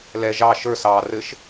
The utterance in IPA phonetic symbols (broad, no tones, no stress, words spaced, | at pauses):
lɛ ʒɑ ʃə˞ sɑːrɘʃ